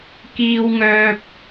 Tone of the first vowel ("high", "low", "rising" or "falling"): high